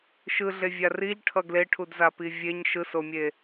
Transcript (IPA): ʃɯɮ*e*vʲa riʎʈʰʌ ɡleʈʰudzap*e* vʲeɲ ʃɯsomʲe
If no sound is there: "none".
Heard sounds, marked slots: e, i

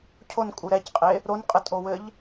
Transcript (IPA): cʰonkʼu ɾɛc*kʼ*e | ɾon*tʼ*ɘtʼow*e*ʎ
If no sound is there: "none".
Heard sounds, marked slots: qʼ, qʼ, ɘ

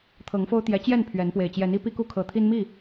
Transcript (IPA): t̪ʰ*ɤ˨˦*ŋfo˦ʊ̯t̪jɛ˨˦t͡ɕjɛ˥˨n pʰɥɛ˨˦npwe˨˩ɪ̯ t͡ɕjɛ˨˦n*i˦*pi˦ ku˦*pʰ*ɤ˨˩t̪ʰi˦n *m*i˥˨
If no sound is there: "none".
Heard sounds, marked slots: ɤ˨˦, i˦, kʰ, m

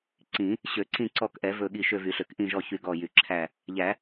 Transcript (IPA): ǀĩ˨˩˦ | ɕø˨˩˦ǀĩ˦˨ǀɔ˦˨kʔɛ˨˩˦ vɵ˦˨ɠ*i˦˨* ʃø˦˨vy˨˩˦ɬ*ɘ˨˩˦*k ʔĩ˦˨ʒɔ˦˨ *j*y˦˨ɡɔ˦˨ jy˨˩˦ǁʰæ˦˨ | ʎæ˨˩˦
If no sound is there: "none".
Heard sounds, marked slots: i˦˨, ø˨˩˦, ç

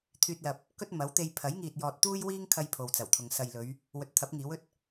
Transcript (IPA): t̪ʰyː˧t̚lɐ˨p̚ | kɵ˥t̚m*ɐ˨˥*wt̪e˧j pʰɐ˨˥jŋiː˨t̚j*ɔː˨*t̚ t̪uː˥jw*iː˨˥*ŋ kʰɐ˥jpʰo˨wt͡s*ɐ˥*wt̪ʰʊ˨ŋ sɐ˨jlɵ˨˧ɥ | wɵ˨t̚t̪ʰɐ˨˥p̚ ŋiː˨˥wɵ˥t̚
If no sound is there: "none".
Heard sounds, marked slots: ɐ˨˥, ɔː˨, iː˥, ɐ˨˩

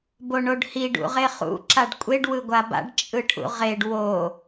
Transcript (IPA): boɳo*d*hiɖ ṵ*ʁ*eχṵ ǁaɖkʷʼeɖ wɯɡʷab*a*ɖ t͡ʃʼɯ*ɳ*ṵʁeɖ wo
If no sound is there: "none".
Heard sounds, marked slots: ɖ, ʁ, a̰, ʈʰ

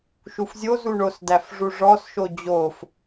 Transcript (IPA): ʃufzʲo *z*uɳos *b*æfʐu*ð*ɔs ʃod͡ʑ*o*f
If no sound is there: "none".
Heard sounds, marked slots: z, d, ʐ, o

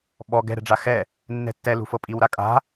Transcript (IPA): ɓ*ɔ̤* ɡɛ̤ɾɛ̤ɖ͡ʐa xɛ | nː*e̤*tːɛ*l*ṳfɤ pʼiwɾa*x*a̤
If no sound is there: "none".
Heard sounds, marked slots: ɔ, ɛ̤, l, kʼ

